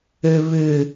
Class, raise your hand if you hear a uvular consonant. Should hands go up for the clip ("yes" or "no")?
no